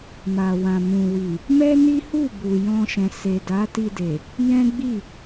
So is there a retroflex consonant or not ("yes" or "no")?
no